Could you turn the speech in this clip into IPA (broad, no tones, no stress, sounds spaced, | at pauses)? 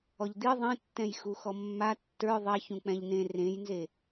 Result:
ɔ ʎ d̪ i ðˤ ẽ tː ɛ̃ j x u x ɔ mː a tː ə˞ ðˤ ɛ ç ũ k͡p ɛ̃ ʎ n ẽ r ẽ j n z e